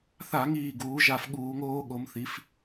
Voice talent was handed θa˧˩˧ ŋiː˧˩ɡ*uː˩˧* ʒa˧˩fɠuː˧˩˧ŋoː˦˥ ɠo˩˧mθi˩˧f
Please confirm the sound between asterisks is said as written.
yes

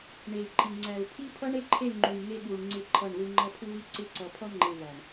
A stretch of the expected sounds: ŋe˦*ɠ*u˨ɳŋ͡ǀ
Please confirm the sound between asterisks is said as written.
yes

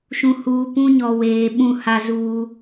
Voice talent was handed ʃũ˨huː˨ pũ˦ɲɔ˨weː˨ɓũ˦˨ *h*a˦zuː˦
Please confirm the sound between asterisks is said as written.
yes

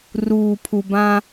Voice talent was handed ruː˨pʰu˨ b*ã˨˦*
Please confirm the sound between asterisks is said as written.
no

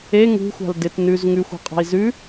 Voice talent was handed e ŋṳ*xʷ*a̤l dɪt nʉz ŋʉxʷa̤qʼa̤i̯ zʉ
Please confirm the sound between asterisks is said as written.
yes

